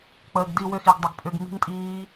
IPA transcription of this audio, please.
k͡pəː˨ɡdi˦˨ wʏ˦˨xi˨ɡ dˤə˨ɡpʼʏ˦˨ɡ mi̤˦˥ŋtʼiː˦˥

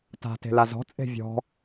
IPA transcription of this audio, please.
ta̤ te̤lazɔ̤ t͡sʼe̤vʲɔ̤

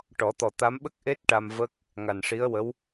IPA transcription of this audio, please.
ʈɔ˨˩˦t̪ɔ˨˩t̪a˧˥m ɓə˦˥k̚ʔe˦˥t̚ ʈa˧mvə˦˥k̚ | ŋa˨˩nʂi˧˥ə̯wə˧˥w

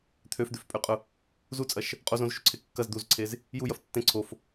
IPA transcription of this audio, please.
t̪ʰøfd̪øfpʼøqʼʊ | zut͡sʼɐʃ | qʼozõzʃuǀʰe kːɐz d̪uzǀʰez | jujɐf tːẽ ǀʰof

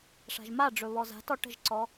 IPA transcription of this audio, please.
ʂa̤ʒmaɖ͡ʐɵ βɔza̤tɔ ʈə̤ʒǀɔ

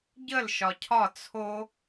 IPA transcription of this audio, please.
ɟəl ʃɒcʰɒ t͡sʰo

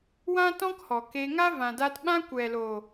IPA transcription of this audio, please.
wã˦tɔ̃˦khɔ˨ ke˧ ŋa˦vã˨daː˧tɓã˦ kʷɛ˨loː˨

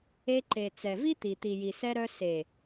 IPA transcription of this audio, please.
e˧ǃe˨t͡sɛ˨vi˦ t̪i˨t̪i˨ji˨ sɛ˧ɾœ˧ se˨

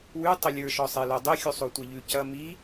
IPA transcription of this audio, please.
wʉ tˤɘlʲə˞ ʃɔsˤelodˤe xʲusˤotʷeʎʉ cɐ mi

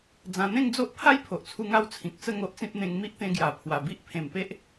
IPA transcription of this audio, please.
d͡zã˧ n̪ẽ˥˧ŋd͡zo˦ʔ pʰa˦jpʰo˨ʔt͡sʰu˧ ŋa˦wt͡sʰĩ˨k̚ t͡sə˥˧ ŋo˦ʔt͡sĩ˦p̚ n̪ẽ˧ŋ mi˦ʔt̪ẽ˧ɡja˨˩ pʰwa˨˩bi˦ʔ pʰẽ˨˩mpe˦ʔ

